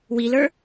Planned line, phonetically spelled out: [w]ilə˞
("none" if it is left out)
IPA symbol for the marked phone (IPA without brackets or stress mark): w